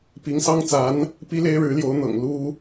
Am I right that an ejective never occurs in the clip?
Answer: yes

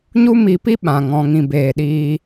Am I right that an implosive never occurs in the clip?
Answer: no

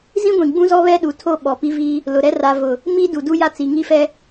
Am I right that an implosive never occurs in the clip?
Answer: no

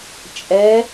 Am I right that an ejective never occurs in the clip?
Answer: no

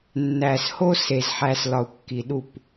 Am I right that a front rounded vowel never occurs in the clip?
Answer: yes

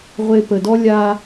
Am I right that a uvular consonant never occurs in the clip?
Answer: no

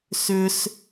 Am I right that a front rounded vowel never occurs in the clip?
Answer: no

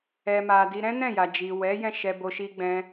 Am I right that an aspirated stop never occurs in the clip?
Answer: yes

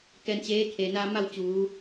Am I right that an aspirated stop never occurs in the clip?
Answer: no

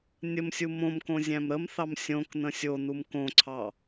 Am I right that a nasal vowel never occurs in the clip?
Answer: no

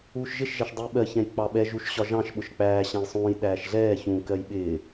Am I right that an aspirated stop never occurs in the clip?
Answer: yes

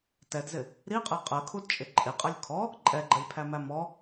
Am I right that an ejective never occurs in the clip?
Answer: no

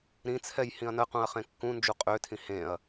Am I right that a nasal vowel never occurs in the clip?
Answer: no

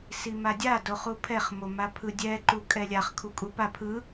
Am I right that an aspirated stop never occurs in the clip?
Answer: no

